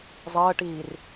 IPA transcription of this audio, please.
zˤ əː ʈ iː r

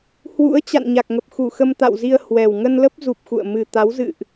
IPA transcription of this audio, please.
h w ṵ˧˥ ə̯ t͡ɕ a̰˧˨ n ɲ a˨˩ k̚ ŋ ə˨˩ p̚ x u˧˩ x ə˧ m t̪ a̰˧˨ w z i˧ ə̯ h w ɛ˨˩ w ŋ ə˧ n l ə˦˥ p̚ z u˨˩ p̚ x ṵ˧˨ ə̯ m ɨ˨˩ t̪ a˨˦ w z ɨ̰˧˨ ʔ

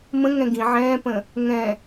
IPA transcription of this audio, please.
m ə̃ ŋ ɛ̃ ɡ ĩ ʕ ɛ̃ː p ə̃ | ŋ ɛ̃

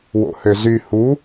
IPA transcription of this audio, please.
w o̰ h ø z y h u

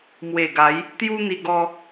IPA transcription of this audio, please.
m w e˨˩ ɡ a˨˦ j | t̪ j u˦ n̪ i˧ ɡ ɔ˧

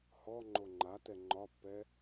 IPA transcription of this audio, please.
h ɔ ŋ͡ǃ o ŋ͡ǃ a t ɛ ŋ͡ǃ ɒ pː ɛ

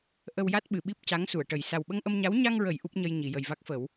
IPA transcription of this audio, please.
ʔ ə˧ w j a˦˥ t̚ ɓ ɨ˨˩˨ ɓ i˦˥ p̚ c a˧˥ ŋ s u˨˩˨ ə̯ ʈ ə˨˩ j s a˨˩ w ɓ ə˧ ŋ ʔ ə˧ m ɲ a˧˥ w ɲ a˧ ŋ ɹ ə˨˩˨ j ʔ u˦˥ p̚ ɲ ə˧ j ɲ i˨˩˨ j ə˨˩ j v a˦˥ k̚ f ə˨˩˦ w

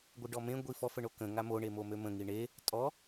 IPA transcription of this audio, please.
ɡʷ ɪ ɖ ɔ m ẽ ɡʷ i f ɔ f ə ɳ o k ə̃ ŋ a m o ɳ e m o m ø m ə̃ ŋ i ɳ e | tʼ ɔ

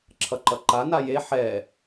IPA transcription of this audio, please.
ǁʰ ʌ ǃ ʌ ǃ a n a j e ħ ɛ

